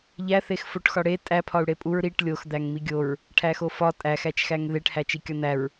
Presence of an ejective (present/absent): present